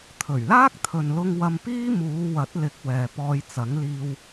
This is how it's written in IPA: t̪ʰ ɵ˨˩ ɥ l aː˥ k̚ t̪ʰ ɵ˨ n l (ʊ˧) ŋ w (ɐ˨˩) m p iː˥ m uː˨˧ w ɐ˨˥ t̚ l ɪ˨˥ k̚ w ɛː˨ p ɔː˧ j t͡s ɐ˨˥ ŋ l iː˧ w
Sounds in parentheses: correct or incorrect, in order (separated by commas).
correct, incorrect